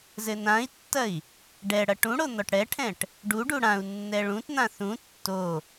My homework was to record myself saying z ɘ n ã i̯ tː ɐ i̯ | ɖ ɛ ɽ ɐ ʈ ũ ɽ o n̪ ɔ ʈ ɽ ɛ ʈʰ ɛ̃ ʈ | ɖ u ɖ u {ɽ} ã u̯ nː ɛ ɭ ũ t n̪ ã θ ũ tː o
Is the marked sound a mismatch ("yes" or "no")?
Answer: no